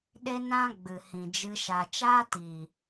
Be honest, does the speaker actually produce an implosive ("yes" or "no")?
yes